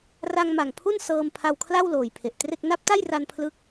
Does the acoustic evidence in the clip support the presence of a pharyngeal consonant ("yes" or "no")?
no